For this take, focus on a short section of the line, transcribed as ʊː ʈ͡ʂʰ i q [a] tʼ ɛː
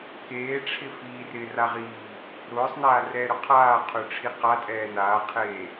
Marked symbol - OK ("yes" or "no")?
yes